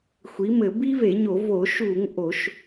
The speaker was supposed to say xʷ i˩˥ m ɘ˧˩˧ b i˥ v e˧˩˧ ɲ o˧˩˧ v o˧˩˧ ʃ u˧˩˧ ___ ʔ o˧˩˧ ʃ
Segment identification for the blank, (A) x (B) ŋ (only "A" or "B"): B